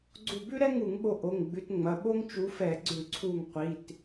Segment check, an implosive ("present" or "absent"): present